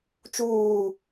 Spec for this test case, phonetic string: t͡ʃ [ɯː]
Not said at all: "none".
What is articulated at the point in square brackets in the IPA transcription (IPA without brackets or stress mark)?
uː